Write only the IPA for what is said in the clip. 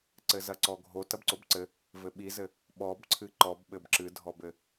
ǀɘzɐǀɔɡʱo tɐbǀobǀɘ | vɘɓizɘ | ɓɔbǀʰɨ ǃɔbɓɘb ǁɨdʱɔbɘ

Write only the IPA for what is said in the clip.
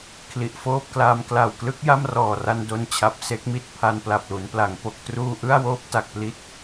kʰli˨˩ʔfoː˥˩p̚klaː˧m kla˨˩wklɯ˦˥k̚ ja˥˩mrɔː˨˩ra˧n do˧nt͡ɕʰa˨˩p̚ se˦˥k̚mi˨˩t̚ pʰa˧npla˨˩p̚lu˩˦npla˩˦ŋ po˨˩k̚truː˧ʔɯ˥˩a̯woː˦˥p̚ ta˨˩k̚pli˦˥t̚

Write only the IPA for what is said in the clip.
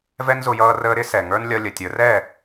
vɛ˦nzʊ˧jʌː˧ rəː˧ɾɪ˦ sɛ˨ŋə˞˦n lʲʌ˧lʲə˨tʲə˞˨˦rɛ˦˨

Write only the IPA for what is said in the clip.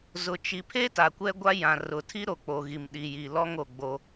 zʊ˨ t͡ʃi˨pʰe˦ ta˨kʷɛ˦ɡʷa˦ jã˨ rʊ˨tʰi˦ ɾo˨k͡po˨ɣi˨m ɗi˨ji˨ lɔ˦ŋo˨ ɡ͡bo˦

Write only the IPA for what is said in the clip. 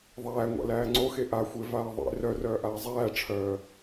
ðˤæːŋʷa̰læː ŋ͡ǀoxe ʔaxʷevaː ðˤḛ rœrœːʔaː zˤæːʈ͡ʂʰœː

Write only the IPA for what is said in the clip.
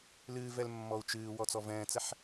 lɨːv ɛlmːɔu̯t͡ʃɨː wɔt͡sɔvɛ̃ːt͡sɛħ

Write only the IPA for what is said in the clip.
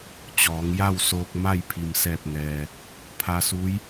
t͡ɕɔː˩˧ŋja˥˨wsoː˧k̚ ma˥˨jpʰi˩msɛː˧˩p̚ŋɛː˩ | pʰa˧su˧˥j

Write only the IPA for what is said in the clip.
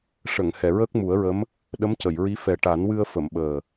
ʂə˨˩˨ŋ hɛ˨˩˨ɹəː˦˥k̚mu˨˩˦ə̯ɹə˧˥m | ɗə˧˥mcə˨˩˨jɹi˧˥ fɛ˨˩ʈa˨˩˦nwɨ˧ə̯ fə˨˩˨mɓəː˨˩

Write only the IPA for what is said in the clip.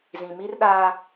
zĩ˨mi˦rɗaː˦

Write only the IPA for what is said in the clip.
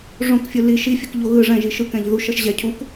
ʐõkfʲɯ li ʃifʲɯkʎo ɣɯ ʐɛ̃ʒi ʃɯkɛ̃ʎ ðuʃʌʃ ʑɛ cʰuk

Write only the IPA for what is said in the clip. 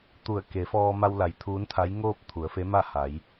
t̪u˧˩ə̯ke˩˧fɔː˧ ma˧wla˩˧j t̪ʰuː˧˥nt̪ʰa˧˥jŋoː˥˨p̚ t̪ʰu˩˧ə̯fe˧˥ma˥˨ha˩˧j

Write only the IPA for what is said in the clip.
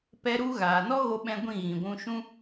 pɛ˦ɾu˦ ɣaː˨nɔ˦ɣo˧ɓɛ̃˧ ɡʷĩ˦˨ɣĩ˨ɡʷũ˧ʃũ˦

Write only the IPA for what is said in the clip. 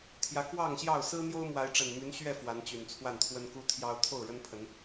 t̪ʰjä˨˦ kwɑ˥˨ŋɕjɑ˥˨ʊ̯ sɹ̩˦n̪jo˦ʊ̯ mwa˨˦ɪ̯ʈ͡ʂə˨˩nmy˨˦n ɕɥɛ˥˨ fwa˨˦nt͡ɕy˨˩nt͡sʰwa˥˨nt̪ʰwə˦n ku˦t̪ʰjɑ˦ʊ̯ t̪ʰo˥˨ʊ̯ɻə˦npʰə˨˦n

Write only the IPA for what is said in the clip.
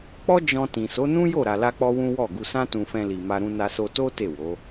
k͡pɔ˦d͡ʒɔ̃˧ tĩ˨so˨˦nũ˦jo˦˨ ɾa˧la˦k͡pɔ˦wũ˦ wɔ˦˨ ɡu˧sã˦tũ˧fɛ̃˧ li˨ma˧ɾũ˧na˧ so˧to˦ te˦˨wo˨˦

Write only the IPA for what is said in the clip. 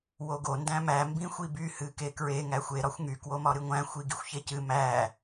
woɡo ndæ̃mæ mbĩxʷiby hɨkekɹe ŋæxʷe ɾɒxʷŋy kwomɒɾɨŋʷæ̃ xʷiɡixʷçecɨ mæ

